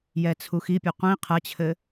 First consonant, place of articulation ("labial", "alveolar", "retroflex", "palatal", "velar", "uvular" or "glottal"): palatal